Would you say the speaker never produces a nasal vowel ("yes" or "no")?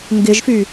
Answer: yes